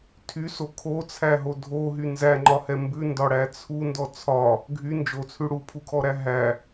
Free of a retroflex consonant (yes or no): no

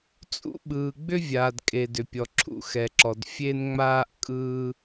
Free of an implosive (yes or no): no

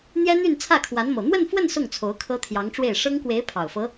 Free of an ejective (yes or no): yes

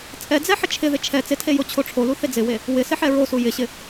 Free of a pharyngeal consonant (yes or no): no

